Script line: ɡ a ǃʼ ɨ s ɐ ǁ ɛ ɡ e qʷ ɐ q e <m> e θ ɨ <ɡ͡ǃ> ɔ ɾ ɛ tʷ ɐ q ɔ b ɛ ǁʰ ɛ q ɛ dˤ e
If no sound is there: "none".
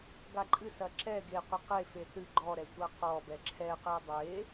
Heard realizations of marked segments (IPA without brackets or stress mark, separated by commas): f, ɡ͡ǃ